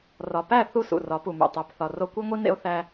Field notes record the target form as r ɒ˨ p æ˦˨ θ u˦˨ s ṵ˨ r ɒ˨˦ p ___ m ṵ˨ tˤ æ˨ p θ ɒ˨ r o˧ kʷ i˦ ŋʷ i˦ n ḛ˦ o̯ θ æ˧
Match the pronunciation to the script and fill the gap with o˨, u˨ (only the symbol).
u˨